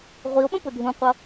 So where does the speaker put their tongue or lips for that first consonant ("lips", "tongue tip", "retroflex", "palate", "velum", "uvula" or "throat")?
uvula